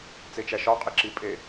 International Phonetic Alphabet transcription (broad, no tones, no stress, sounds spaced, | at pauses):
t͡s e t͡ʃ æ ʃ ɒ qʼ i ǁ i pʼ e